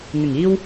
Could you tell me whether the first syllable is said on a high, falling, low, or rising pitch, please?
low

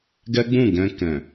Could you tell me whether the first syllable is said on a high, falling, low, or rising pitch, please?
high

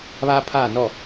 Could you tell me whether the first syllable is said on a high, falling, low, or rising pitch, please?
high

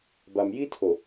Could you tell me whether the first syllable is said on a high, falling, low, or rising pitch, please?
low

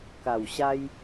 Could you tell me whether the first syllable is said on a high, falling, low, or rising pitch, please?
low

